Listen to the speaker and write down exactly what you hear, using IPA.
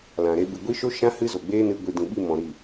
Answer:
l ã˨ ɾ e˧ ɓ ɨ˨ ɡʷ i˧ ʃ o˧ ʃ ã˧ h ɨ˦ z o˨ ɡ͡b eː˦ n ɨ˧ ɡʷ i˨ d ĩ˨ ɓ i˦˨ m ɔ̃˨ ɾ i˦˨

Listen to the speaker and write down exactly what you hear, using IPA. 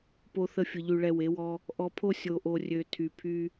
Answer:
p o˧ θ ə˧ fʲ ə˨ ʎ y˨ ɭ ɛ˧ w e˨˦ w ɔ˦ | ʔ ɔ˧ pʰ o˦ sʲ o˨ ʔ o˨ rʲ ø˨ tʰ y˧ pʰ y˦

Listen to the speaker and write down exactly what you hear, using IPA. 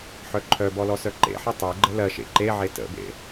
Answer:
ħ œ ǃʰ œ b ɔ l ɔ s œ ǃ ḛ ħ ɜ tˤ e ɡ͡ǃ ə l ɜ ʃ ḛ ǃ e ʕ e t ə̰ b ḛ

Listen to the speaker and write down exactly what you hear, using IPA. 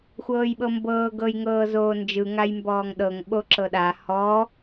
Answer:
xʷ ɤː j ɓ ɤ m b ɤː ɡ ɤ j ŋ ɤː z oː n d͡ʒ ɯ ŋ a j m b ɔː ŋ ɗ ɤ ŋ ɓ o ǁ ɤ ɗ a h ɔ

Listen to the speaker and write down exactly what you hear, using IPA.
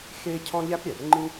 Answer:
x e˥ cʰ ɔ̃˥ ʎ æ˥ p ɾʲ æ˩ r ŋ͡ǃ ĩ˥

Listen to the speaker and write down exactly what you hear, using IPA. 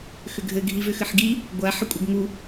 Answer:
x ʏ ɡʱ ɘ ɡʱ i v ʏ x ɘ ħ ɡ i | ɡʷ a ħ ə kʷʼ ə ɡ ŋ u

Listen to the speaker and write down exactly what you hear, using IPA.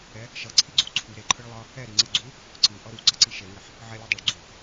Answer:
ɛ | ʃ ʌ ǀʰ i ɡ͡ǀ u ǀʰ u ɾ e ǃʰ ɯ ɭ lˠ ʌ | ɛ ɾ i ŋ͡ǀ ɯ ɡ͡ǀ u | ǀ ɯ ʔ ʌ ɾ u ǀ ʌ ǀ i ʃ e ŋ ɛ ħ | ʕ ɛ lʲ ɯ dˤ o ɭ ɡ͡ǀ u

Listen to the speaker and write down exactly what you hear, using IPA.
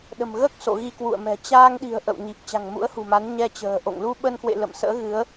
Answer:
ɗ ə̤˨˩ m ɣ əː˦˥ k̚ s o̰˧˨ ɣ i˧ k w ṵ˧˨ ə̯ m ɛ̤˨˩ t͡ɕ aː˧ ŋ ɗ i̤˨˩ ə̯ ʔ ə̰˧˨ w ɲ i˨˩ p̚ t͡ɕ a̤˨˩ ŋ m ṵ˧˥ ə̯ h ṳ˨˩ m a˨˦ n ɲ ɛ˧ t͡ɕ ə̤ː˨˩ ʔ o̰˧˨ ŋ l u˧ ɓ ə˧ n k w ḛ˧˨ l ə̰˧˨ m s ə̰ː˧˥ ɣ ɨ˨˦ ə̯

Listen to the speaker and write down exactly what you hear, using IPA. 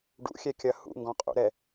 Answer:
ɖ ṵ xʲ ɛ kʲ ɐ h ṵ ŋ ɡ ɔ̃ qʼ ṵ ɾ ɛ

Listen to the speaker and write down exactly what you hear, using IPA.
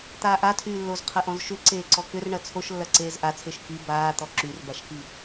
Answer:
t̪ aː ʔ a tʰ yː lː o z qʰ ɐ ʔ ɔ̃ z ʃ ʏ ǀ eː ǀ ɔ k ʏ r ɳ ɐ t͡sʰ o ʃ lː ɐ ǀ eː z ʔ a t͡sʰ e ʃ k i b aː t̪ ɔ ǁ y r b a ʃ k i

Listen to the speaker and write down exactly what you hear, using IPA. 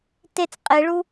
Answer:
t e t͡s qʼ e ɭ u

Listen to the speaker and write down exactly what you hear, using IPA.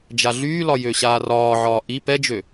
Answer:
d͡ʒ a ɮ yː l ɒ j ø ɕ aː r ɒː ʕ ɒː ʔ i p ɛ d͡ʒ ø

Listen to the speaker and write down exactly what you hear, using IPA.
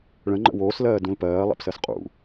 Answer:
ɭ ə̃ ŋ͡ǃ ə̰ w oː s l ɜː d ũ l p ɜː lˠ ɛ̰ p s ɜ s qʼ ṵ

